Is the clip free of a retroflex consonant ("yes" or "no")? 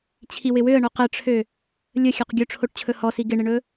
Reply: no